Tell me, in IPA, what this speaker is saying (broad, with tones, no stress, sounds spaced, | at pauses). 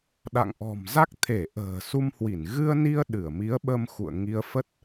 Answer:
ɗ a̰˧˨ ŋ ʔ ɔ̤˨˩ m z a˦˥ k̚ t̪ʰ e˧˩ ʔ ə̤ː˨˩ s u˧ m h w i˧˩ n ɣ ɨ˧ ə̯ n i˧ ə̯ ɗ ɨ˧˩ ə̯ m i˨˦ ə̯ ɓ ə˧ m x ṵ˧˨ ə̯ ŋ i˧ ə̯ f ə˦˥ t̚